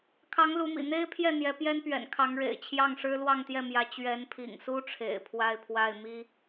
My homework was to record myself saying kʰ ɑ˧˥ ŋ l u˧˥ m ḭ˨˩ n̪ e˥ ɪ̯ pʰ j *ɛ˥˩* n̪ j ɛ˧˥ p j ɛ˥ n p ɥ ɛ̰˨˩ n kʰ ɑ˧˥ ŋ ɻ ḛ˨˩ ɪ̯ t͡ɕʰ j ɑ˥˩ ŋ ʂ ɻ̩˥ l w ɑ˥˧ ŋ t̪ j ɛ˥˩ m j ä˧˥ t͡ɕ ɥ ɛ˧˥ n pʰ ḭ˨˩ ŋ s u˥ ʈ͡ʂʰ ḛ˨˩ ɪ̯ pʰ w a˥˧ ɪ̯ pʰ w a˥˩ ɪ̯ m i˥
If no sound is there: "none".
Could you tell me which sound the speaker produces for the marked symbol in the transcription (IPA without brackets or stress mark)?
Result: ɛ˥˩